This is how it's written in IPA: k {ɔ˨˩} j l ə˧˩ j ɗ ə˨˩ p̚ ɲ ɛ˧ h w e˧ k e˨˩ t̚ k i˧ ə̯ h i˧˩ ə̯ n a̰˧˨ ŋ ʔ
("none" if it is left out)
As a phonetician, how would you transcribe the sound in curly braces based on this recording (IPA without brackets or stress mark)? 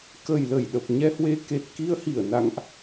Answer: ə˨˩